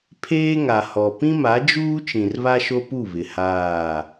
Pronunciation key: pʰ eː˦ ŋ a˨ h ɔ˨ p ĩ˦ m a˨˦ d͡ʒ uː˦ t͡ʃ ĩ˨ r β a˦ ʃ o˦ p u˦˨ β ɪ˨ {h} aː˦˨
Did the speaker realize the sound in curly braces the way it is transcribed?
yes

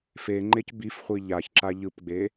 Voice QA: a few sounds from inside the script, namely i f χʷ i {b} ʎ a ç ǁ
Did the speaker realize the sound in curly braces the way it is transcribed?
no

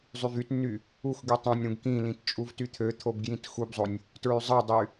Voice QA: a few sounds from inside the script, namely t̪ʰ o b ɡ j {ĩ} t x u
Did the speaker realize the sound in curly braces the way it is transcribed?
yes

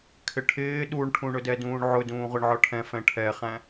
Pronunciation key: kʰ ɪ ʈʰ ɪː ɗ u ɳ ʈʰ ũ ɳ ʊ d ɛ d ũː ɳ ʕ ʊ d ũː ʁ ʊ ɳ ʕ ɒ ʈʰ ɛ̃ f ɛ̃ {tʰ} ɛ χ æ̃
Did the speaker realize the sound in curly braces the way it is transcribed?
no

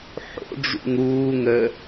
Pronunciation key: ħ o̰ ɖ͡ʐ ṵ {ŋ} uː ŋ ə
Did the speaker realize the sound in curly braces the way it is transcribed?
yes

